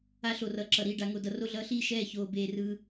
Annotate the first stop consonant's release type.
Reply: click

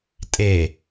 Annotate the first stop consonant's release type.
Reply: ejective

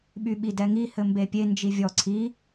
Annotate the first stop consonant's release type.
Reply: implosive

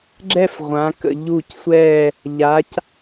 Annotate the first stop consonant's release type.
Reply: click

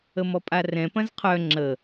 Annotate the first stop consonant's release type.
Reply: ejective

